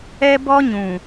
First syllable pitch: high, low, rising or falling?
high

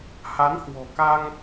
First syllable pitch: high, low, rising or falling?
rising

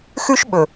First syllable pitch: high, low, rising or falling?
high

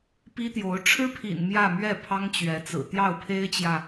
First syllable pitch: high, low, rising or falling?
high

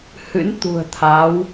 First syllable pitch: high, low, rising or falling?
rising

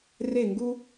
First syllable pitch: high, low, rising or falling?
falling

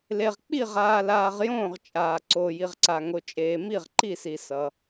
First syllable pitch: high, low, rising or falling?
low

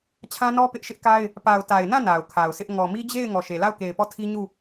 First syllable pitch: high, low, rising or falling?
high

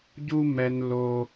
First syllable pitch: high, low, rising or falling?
high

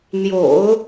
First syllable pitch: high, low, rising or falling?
low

